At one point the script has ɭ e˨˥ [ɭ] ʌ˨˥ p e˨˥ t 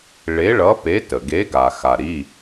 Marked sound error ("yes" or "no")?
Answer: no